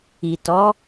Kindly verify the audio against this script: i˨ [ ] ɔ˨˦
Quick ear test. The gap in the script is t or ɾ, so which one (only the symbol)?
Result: t